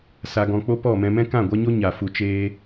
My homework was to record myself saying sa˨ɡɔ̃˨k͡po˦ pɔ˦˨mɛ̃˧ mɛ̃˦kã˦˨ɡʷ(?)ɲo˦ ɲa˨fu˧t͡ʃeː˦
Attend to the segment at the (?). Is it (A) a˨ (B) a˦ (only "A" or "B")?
B